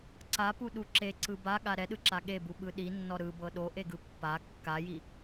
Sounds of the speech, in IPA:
ǀ a p u ɗ u ǁ e ǀ ɯ b a ɠ a ɾ ɛ ɗ ɯ ǁ a ɠ e b u ɓ ɯ ɗ i nː ɔ ɾ ɯ b ɤ ɗ o ʔ e ɡ ɯ pː a kː a j i

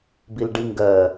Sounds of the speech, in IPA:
b i l ɖ i ŋ ɡ ɜ

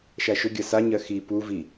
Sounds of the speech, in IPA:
ʃ a ʃ ɵ ɡʲ ɜ s a ɲ ɜ x i p u v i

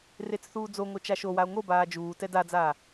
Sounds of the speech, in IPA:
r e t͡s θ uː d͡z o ŋ o t͡ʃ a ʃ o w a o̯ ŋ o b aː d͡ʒ uː t ɛ d a d͡z aː

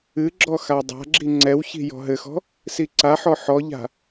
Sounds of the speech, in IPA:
ɨ ɡ͡ǁ ɔ x a dˤ a̤ ɡ͡ǁ i ŋ͡ǀ ɛ w ç i̤ j ɔ̤ ɦ ɘ x ɔ̤ | s i ǀ a ħ ɔ ħ ɔ ʎ a̤

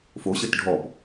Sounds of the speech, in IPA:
f o ɕ ə t ɖʱ ɔ p

